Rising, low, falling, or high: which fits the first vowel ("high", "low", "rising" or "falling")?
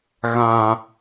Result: high